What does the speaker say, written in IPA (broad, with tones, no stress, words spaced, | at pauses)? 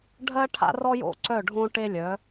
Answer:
ɖʱɜ˦ʈʰa̰˦rɔ˦jo̰˦ ǀœ˦˨ɖʱõ˦ʈe˦lʲœ˨˦